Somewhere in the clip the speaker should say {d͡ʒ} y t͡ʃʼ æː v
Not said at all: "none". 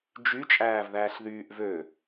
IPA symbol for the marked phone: d͡ʒ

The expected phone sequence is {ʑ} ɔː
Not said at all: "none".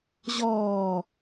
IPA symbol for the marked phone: ʑ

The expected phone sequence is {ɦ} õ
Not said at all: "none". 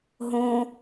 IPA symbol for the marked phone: ɦ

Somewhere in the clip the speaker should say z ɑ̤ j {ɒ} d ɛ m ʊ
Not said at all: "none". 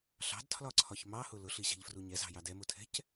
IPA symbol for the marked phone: ɑ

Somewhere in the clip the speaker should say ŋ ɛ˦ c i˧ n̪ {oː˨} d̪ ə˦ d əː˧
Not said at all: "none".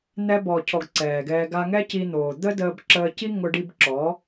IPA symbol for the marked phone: oː˨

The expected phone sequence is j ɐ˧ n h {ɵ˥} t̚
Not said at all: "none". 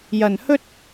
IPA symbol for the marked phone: ɵ˥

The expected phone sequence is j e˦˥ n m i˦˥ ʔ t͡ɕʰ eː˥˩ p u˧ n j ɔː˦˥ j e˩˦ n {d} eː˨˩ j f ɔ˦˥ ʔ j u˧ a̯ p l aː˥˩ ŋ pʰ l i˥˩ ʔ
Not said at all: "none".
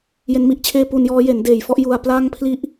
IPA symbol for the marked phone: d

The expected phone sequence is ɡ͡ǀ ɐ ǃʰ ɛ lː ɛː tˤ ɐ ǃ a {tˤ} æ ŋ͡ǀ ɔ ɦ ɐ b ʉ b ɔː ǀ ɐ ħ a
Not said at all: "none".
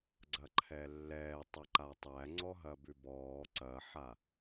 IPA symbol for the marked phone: tˤ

